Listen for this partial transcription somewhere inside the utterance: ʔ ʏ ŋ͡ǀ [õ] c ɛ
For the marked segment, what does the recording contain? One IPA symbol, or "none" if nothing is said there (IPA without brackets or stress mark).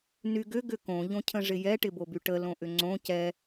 õ